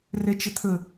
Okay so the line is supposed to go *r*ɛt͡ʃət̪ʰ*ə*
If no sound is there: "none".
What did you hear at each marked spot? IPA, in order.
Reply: r, ə

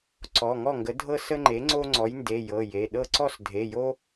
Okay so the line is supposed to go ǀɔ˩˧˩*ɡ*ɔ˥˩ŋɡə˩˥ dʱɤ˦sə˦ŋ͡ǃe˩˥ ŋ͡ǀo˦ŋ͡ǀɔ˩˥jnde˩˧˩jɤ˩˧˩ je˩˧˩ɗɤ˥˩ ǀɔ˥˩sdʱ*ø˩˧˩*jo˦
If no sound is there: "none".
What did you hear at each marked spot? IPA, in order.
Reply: ŋ, e˩˧˩

